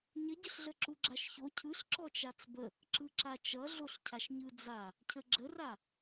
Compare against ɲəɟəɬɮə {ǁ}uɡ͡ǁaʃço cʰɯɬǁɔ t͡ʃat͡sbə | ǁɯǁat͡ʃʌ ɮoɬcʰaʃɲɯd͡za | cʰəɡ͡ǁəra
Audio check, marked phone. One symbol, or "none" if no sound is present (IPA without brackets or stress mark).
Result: ǁ